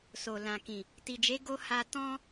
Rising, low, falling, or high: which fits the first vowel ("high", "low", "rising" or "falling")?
low